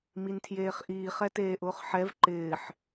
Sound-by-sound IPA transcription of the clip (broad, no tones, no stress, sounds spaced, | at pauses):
m i n tʰ j eː χ ʔ iː χ ɛ t eː ʔ ʊː χ ħ ɛ v ǃ ɪː ħ